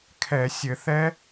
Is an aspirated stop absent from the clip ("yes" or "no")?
no